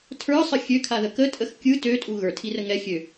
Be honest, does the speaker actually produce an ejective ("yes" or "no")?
yes